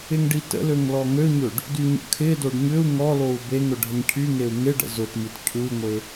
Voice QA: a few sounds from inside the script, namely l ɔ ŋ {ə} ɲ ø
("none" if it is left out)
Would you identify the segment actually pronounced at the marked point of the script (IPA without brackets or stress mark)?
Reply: ø